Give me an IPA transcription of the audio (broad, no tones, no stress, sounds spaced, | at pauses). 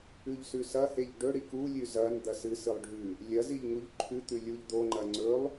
ʉ ʎ s ʉ s ɐ h e ʎ ɖ ɵ ɽ i k u lʲ ʉ z ɐ n d̪ ɐ s ɨ s ɨ lˠ ɖʱ ʉ | lʲ ɐ z i ʎ ŋ u ʎ ǃʰ ʉ t̪ ʉ lʲ u ʎ d̪ o ŋ͡ǃ ɐ ŋ͡ǀ ɵ lˠ